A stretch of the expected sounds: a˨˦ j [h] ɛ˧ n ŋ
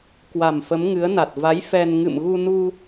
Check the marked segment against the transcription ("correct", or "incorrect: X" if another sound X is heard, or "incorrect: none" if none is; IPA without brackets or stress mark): incorrect: f